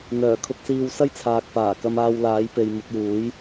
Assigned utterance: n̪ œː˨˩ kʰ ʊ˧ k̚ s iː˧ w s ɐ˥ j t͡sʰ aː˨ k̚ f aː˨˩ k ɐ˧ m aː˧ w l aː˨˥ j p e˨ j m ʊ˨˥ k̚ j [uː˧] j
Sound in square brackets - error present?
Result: yes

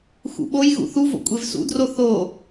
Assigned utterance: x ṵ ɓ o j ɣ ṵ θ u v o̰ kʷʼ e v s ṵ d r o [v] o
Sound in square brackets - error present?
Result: yes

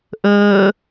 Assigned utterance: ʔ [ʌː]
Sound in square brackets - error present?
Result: yes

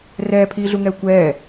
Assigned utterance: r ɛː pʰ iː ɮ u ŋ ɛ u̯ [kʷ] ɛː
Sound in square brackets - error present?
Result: no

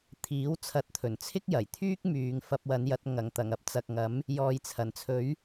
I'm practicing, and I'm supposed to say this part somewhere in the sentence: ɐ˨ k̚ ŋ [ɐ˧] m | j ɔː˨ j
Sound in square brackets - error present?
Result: yes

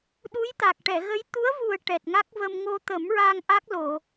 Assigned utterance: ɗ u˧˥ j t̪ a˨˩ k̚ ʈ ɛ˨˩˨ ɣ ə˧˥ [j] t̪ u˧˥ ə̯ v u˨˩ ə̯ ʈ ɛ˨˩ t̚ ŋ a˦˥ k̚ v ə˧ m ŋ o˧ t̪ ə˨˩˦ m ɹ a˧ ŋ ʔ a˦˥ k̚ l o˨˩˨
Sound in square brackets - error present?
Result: no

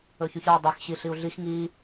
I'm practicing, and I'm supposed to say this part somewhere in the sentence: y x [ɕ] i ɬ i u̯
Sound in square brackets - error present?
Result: no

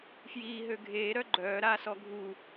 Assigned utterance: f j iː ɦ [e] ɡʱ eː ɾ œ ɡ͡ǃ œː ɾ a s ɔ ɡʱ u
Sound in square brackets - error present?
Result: yes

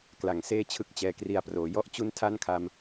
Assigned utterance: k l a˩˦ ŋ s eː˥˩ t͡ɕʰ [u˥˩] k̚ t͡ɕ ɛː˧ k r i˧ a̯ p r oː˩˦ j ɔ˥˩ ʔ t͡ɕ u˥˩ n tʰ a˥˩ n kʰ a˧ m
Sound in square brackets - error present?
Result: yes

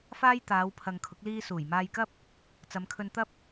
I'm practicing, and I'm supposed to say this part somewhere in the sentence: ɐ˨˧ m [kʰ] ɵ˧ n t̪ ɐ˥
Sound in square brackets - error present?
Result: no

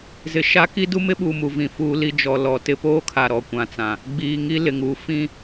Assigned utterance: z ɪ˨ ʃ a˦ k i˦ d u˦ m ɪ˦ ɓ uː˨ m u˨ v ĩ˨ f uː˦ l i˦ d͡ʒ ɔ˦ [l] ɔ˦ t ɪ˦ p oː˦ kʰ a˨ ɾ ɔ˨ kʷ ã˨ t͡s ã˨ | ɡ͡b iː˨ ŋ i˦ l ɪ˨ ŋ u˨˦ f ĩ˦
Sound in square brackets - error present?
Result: no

